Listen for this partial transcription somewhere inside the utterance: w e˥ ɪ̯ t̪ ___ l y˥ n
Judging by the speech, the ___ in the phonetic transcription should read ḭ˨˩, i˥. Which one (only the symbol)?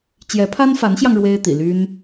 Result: ḭ˨˩